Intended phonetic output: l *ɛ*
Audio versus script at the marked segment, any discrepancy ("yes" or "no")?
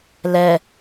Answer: no